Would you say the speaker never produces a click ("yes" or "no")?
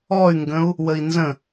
yes